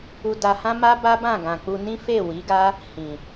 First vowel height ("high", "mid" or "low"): high